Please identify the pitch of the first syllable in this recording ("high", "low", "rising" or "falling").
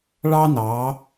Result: high